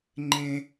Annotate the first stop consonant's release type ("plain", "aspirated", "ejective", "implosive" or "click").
click